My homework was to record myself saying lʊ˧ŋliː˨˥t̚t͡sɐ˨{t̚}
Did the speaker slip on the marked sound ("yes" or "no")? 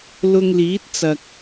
yes